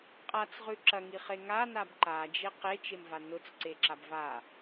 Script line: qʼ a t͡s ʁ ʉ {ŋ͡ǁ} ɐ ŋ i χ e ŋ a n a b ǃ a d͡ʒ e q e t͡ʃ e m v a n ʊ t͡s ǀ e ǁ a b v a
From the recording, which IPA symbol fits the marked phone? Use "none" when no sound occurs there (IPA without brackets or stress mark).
ǁ